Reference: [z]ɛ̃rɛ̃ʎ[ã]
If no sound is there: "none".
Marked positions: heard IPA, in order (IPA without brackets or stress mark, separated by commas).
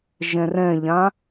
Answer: ʒ, ã